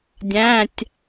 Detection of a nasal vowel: present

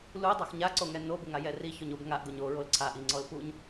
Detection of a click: present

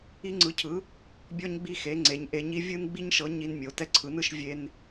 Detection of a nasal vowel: absent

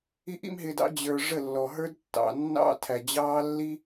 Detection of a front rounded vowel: absent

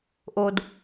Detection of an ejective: absent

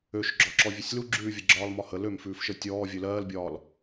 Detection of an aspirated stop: absent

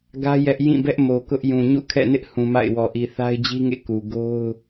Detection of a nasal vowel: present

